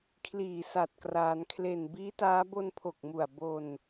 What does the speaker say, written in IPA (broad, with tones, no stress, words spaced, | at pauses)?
kʰliː˨˩sa˨˩t̚ kraː˩˦nkʰle˨˩n biː˦˥taː˦˥ bo˧npʰo˨˩k̚mu˨˩a̯ bo˧n